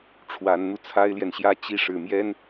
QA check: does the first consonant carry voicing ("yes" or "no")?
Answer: no